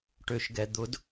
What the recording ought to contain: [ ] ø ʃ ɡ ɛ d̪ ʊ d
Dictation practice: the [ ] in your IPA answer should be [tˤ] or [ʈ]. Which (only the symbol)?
ʈ